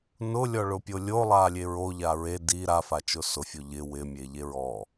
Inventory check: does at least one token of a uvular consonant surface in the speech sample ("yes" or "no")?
no